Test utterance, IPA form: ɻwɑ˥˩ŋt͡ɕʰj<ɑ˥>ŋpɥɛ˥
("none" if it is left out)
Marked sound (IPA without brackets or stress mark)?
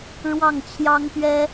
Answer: ɑ˥